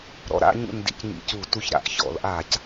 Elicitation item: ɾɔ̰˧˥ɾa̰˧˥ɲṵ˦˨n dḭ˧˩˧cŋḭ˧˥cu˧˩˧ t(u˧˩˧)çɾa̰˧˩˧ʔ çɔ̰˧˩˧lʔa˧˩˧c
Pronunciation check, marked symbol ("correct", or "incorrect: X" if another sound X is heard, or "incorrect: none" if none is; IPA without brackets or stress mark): incorrect: u˦˨